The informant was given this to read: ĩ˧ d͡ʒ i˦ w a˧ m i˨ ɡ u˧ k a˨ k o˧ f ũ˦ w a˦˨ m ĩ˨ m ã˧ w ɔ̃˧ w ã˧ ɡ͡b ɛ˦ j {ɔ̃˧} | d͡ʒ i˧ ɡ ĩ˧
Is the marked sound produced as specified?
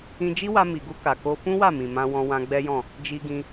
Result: no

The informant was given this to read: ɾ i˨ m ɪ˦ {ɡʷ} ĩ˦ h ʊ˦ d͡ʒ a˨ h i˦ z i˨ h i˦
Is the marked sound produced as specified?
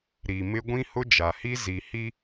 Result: yes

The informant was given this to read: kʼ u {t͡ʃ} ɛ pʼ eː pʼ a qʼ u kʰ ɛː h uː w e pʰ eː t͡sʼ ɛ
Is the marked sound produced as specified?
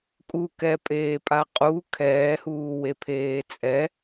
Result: no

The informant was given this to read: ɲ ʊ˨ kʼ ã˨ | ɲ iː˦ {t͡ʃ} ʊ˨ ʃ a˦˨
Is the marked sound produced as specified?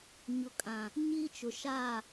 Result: yes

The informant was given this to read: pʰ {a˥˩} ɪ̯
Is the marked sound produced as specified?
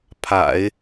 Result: no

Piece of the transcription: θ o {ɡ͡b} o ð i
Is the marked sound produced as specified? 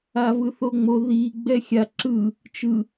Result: no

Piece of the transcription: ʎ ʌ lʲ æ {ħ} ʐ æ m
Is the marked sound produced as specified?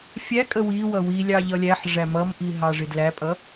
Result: yes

